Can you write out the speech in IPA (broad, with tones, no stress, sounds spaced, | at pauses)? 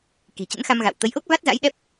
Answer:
k i̤˨˩ t͡ɕ ə̰˧˥ n x a˧ m ɣ a̰˧˨ w t̪ ə˨˦ j ʔ o˦˥ k̚ v a˦˥ t̚ z a̰˧˥ j ɗ ɛ˦˥ p̚